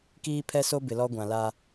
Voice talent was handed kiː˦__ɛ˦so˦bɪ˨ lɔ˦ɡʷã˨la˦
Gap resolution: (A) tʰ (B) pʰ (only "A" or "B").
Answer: B